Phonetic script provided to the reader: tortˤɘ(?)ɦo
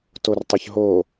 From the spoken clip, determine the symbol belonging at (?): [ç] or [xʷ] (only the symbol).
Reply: ç